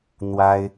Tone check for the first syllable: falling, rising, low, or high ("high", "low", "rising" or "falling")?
high